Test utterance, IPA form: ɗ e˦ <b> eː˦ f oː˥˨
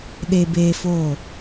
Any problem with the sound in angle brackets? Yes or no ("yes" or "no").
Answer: no